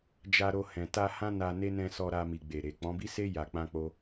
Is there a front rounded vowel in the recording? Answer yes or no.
no